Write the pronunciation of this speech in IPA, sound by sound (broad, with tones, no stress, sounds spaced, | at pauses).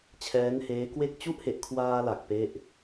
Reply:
t͡ɕʰ ɛː˦˥ n h eː˦˥ k w e˥˩ k̚ t͡ɕ u˦˥ ʔ h e˨˩ ʔ kʰ w aː˧ l a˨˩ k̚ p e˥˩ ʔ